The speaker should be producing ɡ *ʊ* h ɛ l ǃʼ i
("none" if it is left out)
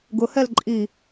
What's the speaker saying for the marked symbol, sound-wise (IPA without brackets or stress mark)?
ʊ